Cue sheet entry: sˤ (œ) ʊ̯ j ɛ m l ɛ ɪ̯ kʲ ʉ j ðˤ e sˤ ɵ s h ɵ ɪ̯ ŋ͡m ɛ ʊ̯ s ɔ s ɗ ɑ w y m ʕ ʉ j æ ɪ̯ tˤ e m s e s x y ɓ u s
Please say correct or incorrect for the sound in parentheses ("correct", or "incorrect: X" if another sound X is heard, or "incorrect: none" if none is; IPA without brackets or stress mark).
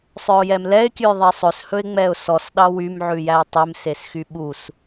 correct